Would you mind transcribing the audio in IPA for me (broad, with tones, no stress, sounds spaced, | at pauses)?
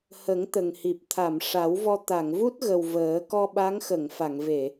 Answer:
h ə˨˩˦ ŋ t̪ ə˨˩ ŋ h i˨˩ p̚ t̪ʰ a˨˩˨ m ʂ a˨˩˦ w v ɔ˧ t̪ a˨˩˨ ŋ v u˦˥ t̚ ɣ ə˨˩ w v əː˨˩˦ k ɔ˧ ɓ a˧˥ ŋ x ə˨˩˨ ŋ f a˨˩˨ ŋ v e˨˩˨